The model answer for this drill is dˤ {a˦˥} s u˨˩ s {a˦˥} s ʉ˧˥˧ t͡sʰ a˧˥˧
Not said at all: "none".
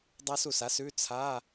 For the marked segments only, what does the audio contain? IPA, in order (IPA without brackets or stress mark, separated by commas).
a˦˥, a˦˥